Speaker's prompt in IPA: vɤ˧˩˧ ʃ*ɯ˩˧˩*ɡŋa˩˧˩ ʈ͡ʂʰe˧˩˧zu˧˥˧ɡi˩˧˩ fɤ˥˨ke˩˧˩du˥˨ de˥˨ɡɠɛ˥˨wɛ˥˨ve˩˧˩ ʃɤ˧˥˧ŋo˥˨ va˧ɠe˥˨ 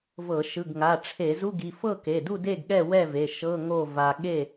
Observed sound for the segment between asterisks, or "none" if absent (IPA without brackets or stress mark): ɯ˩˧˩